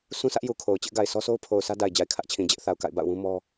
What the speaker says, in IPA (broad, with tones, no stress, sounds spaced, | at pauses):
sʰ ũ˦ sʰ ä˦ ʔ j u˨ kʰ o˨ ʊ̯ t͡ɕ ɪ˦ ʔ ɡ a˨ ɪ̯ sʰ ɔ˦ sʰ o˦ ʊ̯ pʰ o˨ ʊ̯ s ä˦ d a˨ ɪ̯ d͡ʑ a˨ ɪ̯ kʰ ä˦ ʔ t͡ɕʰ ĩ˨ d͡ʑ ɪ˦ ʔ θ a˨ ʊ̯ k a̰˦˨ ɪ̯ b a̰˦˨ ʊ̯ w ũ˦ m ɔ˦